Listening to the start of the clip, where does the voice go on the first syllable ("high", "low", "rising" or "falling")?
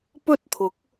high